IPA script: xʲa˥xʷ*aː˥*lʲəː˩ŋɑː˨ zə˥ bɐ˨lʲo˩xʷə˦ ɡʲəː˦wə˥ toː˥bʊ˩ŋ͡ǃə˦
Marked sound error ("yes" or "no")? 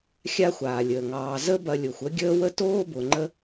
yes